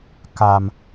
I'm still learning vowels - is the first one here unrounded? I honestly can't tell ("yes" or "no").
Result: yes